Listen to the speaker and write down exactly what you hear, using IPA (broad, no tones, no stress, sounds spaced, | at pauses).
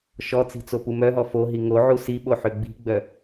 ʃ ɔ t͡s i̤ t͡s o p u m œ ɦ ɔ f o ɦ i ŋ o ʕ u s i ɓ o ħ ʏ ɡ͡b i̤ ɡ͡b œ